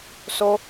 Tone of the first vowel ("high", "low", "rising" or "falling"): high